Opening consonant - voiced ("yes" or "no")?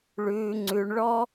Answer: yes